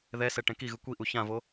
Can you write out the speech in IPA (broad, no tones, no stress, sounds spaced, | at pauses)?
ð ɛ s ɛ ʈ ɛ̃ k i ɣ ɯ kʷ i ʔ u ç ã v o